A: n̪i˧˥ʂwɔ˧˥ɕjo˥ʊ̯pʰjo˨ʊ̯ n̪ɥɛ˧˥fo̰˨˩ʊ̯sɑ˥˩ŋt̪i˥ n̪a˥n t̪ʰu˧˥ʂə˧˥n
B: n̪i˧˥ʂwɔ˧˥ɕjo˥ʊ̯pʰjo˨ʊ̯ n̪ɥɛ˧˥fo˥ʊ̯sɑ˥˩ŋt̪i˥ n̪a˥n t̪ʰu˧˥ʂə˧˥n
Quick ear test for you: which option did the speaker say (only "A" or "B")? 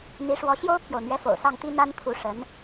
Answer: A